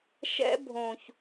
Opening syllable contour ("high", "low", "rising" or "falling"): high